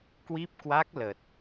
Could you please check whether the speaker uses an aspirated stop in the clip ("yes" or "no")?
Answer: no